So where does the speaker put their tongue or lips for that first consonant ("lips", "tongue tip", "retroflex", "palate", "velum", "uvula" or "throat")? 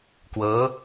velum